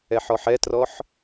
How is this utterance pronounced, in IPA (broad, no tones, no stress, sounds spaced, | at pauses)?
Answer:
ɛ ħ ɔ ħ ɛ t r ɔ ħ